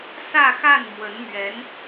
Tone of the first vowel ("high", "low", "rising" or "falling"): falling